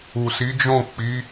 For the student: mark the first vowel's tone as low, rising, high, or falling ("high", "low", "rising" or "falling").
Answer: low